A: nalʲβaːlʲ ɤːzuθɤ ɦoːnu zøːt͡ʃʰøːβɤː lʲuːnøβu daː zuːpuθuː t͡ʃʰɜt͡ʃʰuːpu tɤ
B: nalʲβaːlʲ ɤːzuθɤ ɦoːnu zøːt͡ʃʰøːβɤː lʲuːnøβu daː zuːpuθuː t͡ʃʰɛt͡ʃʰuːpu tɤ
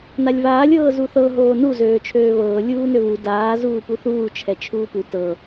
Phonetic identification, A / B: B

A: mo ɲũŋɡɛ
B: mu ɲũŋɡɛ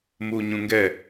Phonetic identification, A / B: B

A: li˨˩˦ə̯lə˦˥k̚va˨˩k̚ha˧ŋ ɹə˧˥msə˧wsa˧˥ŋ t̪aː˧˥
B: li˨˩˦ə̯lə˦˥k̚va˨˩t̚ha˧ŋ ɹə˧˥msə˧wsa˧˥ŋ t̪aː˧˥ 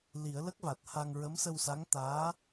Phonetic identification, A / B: B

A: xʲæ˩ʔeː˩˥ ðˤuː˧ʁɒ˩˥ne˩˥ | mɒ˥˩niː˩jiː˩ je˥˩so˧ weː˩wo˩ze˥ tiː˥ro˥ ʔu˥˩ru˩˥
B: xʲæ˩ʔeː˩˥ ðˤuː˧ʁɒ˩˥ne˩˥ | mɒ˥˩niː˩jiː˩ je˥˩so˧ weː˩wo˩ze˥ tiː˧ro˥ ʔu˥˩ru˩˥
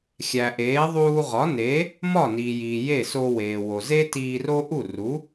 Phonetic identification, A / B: B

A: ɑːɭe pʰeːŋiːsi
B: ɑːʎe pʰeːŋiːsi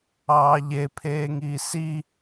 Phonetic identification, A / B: B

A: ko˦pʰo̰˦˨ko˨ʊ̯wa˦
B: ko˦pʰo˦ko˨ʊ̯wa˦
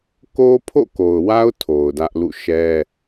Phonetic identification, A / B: A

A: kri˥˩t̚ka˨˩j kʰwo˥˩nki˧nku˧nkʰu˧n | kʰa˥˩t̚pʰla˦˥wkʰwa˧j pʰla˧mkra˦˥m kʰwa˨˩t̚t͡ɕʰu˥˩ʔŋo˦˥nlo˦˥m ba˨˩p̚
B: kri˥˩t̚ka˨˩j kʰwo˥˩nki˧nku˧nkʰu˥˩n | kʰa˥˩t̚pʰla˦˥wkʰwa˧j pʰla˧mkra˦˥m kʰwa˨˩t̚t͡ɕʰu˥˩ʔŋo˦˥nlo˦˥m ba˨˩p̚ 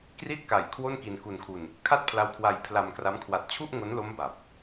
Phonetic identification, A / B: A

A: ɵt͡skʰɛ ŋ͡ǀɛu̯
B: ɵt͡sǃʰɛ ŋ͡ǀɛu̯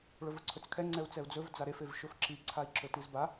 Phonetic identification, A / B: A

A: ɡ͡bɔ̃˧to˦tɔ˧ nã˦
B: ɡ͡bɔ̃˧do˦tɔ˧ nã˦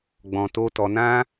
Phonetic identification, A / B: A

